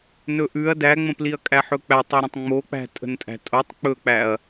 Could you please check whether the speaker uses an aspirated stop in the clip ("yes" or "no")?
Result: no